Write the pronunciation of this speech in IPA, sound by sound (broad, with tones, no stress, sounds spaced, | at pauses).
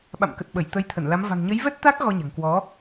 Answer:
ɓ a̰˧˨ m k ə˨˩ t̚ ɓ ə˧˩ j t̪ ə˨˦ j t̪ʰ ə˧˩ n l a˨˦ m v a̤˨˩ ŋ ɲ ə˨˦ j v ɛ˦˥ t̚ t̪ aː˦˥ k̚ ɣ ɔ˧ ɲ a̤˨˩ ŋ k w ɔ˨˦